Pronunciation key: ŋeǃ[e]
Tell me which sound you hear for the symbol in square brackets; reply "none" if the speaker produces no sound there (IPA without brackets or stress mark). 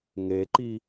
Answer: i